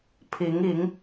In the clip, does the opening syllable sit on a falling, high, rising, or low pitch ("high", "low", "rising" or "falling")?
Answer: rising